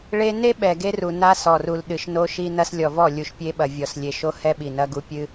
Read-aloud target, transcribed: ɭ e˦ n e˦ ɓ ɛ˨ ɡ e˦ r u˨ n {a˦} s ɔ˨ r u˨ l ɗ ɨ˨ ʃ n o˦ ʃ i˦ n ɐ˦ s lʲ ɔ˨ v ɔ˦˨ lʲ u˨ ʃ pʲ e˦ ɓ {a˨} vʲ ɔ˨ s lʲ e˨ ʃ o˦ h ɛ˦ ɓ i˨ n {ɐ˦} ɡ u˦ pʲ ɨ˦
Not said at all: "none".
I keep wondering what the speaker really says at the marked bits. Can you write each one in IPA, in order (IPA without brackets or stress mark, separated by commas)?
a˦, ɐ˨, ɐ˦